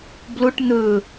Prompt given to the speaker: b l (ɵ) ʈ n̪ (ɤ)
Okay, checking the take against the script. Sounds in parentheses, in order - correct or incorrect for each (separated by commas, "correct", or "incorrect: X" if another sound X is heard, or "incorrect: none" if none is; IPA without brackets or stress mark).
incorrect: ʊ, incorrect: ɵ